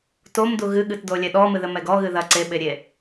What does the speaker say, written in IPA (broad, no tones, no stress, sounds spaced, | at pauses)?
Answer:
t o m d u ɣ ɨ ɠ ɨ t d o lʲ ɛ ɗ ɔ m ɨ ð ɘ m ɛ ɡ ɔ ɣ ɨ ð ɐ ǀ e ɓ e ɾʲ e